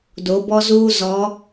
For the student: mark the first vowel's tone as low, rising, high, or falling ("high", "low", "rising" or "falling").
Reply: rising